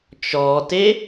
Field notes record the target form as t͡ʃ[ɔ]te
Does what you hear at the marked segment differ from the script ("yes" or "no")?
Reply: no